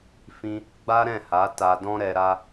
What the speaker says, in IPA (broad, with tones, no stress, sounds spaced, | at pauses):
f ĩ˦ | ɡ͡b a˦ ɾ ɛ̃˦˨ h a˨˦ t a˧ d ɔ̃˦ ɾ ɛ˧ ɾ a˦